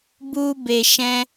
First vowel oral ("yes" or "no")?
yes